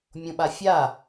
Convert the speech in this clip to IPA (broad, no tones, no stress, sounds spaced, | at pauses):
mʲ õ ɓ a fʲ a